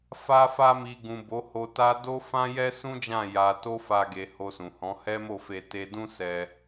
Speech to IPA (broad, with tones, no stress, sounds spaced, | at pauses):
f a˦ f a˦ m i˧ ɡ ũ˨ b o˨˦ h o˧ t a˦ d o˦ f ã˦ j ɛ˦ s ũ˦ d͡ʒ ã˦˨ j a˧ t o˦ f a˧ ɡ e˧ h o˧ s ũ˨ h ɔ̃˨˦ h ɛ˦ m o˦˨ f e˧ t e˧ d ũ˦ s ɛ˧